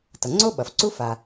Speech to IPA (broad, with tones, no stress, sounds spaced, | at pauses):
t ʌ˩ ŋ͡ǀ o˥ ɓ ʌ˩ f ǀ u˥ f a˩